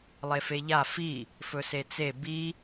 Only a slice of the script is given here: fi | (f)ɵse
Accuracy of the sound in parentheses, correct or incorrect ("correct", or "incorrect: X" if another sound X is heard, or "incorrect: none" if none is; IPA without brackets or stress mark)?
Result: correct